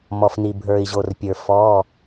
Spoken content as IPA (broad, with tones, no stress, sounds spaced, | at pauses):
m ɔ˨ f n i˨ bʱ ə˞˨ i̯ ʑ o˨ r pʲ ə˞˨ f ɔ˧˥˧